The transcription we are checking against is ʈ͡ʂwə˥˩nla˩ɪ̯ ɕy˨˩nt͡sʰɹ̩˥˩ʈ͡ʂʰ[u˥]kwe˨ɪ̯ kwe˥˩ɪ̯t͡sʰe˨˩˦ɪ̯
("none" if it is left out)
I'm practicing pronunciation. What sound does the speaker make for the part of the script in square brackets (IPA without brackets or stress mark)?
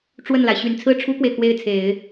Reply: u˥